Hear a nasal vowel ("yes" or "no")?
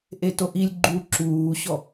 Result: no